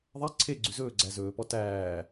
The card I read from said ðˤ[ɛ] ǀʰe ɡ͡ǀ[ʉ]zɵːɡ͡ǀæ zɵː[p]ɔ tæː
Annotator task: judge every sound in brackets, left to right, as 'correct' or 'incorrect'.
incorrect: æ, correct, correct

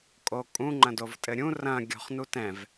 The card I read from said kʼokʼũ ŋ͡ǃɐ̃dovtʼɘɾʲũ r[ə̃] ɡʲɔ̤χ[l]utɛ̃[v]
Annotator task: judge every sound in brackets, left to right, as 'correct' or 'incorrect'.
incorrect: ɐ̃, incorrect: n, correct

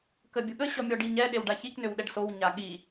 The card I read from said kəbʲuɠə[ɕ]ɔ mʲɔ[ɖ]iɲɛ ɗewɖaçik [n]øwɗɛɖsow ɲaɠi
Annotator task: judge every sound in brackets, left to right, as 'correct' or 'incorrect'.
correct, correct, correct

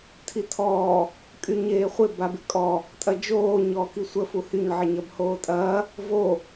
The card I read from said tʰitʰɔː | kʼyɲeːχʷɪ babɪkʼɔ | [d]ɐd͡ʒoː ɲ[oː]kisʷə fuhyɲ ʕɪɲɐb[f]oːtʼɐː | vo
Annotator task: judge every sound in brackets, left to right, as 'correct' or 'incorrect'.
incorrect: tʼ, incorrect: ɔː, incorrect: h

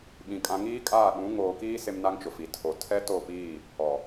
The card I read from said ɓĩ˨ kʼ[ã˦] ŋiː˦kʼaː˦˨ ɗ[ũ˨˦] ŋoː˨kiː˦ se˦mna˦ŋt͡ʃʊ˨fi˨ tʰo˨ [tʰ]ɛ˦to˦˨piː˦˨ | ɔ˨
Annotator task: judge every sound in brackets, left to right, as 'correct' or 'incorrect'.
incorrect: ã˨, correct, correct

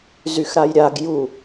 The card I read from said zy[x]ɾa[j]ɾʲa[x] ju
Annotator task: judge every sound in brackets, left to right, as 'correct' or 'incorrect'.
correct, correct, incorrect: ɡ

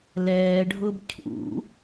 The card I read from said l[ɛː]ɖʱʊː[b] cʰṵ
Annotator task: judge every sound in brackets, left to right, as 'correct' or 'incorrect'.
correct, correct

